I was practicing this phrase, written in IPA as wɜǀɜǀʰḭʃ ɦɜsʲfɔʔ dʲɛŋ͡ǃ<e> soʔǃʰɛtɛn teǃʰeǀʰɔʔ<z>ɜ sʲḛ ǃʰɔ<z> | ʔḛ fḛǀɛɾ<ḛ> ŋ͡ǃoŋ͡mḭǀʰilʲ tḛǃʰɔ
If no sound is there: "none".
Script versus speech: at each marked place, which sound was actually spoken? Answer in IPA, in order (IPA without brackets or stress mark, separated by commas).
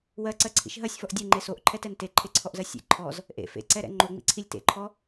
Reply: e, z, z, ɛ̰